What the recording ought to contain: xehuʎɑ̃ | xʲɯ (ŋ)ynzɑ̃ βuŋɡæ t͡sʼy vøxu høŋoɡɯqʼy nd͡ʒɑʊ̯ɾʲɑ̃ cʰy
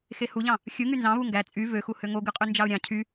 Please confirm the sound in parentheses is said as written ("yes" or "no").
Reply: yes